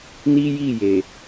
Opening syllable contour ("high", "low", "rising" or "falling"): high